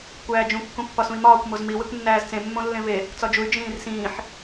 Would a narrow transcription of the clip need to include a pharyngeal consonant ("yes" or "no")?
yes